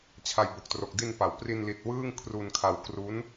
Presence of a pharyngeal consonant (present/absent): absent